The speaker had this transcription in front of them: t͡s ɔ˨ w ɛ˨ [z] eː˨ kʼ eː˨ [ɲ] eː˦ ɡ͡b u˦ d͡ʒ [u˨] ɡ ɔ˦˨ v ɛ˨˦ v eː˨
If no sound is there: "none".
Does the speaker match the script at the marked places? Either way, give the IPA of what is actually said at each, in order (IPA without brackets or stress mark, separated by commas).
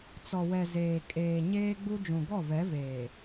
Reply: z, ɲ, ũ˨